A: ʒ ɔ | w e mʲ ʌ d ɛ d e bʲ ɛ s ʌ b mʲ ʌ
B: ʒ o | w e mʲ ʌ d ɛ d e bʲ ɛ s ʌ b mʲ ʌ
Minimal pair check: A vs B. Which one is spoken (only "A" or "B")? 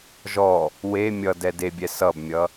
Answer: A